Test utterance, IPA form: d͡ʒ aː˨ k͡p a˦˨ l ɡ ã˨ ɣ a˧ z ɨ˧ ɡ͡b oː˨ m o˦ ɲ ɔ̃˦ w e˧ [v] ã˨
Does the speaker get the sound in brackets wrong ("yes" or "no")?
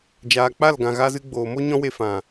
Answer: yes